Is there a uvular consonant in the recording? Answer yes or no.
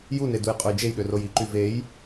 yes